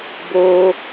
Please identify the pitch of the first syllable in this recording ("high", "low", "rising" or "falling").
high